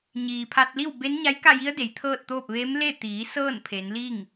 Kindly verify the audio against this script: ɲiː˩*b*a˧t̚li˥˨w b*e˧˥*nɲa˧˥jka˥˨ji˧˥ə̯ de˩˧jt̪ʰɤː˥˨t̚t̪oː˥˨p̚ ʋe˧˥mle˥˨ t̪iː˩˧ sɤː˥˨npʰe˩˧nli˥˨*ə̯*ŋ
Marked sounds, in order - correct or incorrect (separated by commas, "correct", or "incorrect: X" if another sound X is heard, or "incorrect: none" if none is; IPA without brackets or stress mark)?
incorrect: pʰ, correct, incorrect: none